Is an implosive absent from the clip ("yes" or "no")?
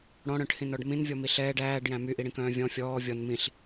yes